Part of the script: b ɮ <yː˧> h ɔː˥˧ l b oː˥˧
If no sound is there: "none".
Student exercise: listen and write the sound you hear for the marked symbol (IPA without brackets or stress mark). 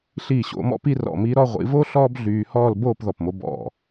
yː˧